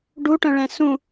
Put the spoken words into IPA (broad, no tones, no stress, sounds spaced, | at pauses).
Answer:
ɖ u ʈ œ̃ ɭ ɛ̃ s ũ